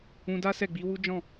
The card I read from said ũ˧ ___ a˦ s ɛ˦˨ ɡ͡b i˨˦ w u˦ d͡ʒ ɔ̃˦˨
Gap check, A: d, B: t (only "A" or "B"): A